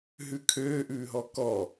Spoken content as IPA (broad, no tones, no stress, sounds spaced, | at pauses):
ɦ ʉ kʰ øː ʔ ʉː ɦ ɔ k ɔ